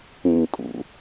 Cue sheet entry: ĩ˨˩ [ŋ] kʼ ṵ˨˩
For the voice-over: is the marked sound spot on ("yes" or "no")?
yes